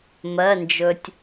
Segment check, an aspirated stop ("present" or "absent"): absent